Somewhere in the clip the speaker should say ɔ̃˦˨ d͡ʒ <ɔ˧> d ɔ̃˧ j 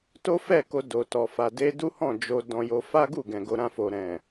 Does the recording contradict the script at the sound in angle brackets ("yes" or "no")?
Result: yes